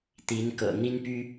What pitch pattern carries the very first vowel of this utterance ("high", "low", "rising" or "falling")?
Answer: rising